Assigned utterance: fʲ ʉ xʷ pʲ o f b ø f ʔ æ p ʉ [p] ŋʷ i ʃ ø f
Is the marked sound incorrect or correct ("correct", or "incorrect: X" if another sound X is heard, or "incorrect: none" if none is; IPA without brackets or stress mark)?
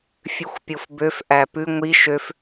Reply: incorrect: none